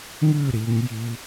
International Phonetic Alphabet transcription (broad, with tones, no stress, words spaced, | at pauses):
ŋʉ˥˧ ɾi˩˧ŋji˧